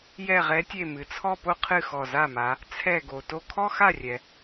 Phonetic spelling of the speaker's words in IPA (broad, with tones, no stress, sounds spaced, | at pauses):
j ɛ˧˩ ʁ ɛ˨˦ tʲ e˧˩ m ɨ˩ t͡sʰ ɔ˥˧ p o˥ qʰ ɨ˥˩ x ɔ˧˩ z a˥˩ m a˨˦ | t͡sʰ ɛ˧˩ ɡ o˩ t o˧˩ kʰ ɔ˥ x a˥˩ rʲ ɛ˩